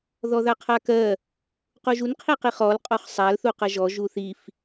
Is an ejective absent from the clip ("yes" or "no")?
no